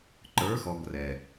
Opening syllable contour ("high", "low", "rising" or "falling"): rising